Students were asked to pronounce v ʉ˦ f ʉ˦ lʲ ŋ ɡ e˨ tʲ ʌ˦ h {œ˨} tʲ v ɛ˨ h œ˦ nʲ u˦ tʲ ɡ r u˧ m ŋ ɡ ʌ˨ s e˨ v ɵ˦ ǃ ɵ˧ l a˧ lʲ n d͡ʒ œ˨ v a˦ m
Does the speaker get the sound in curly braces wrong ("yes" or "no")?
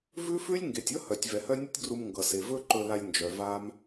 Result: no